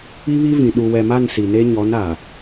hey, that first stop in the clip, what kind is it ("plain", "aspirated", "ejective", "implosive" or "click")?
implosive